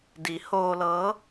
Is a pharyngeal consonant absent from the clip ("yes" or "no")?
yes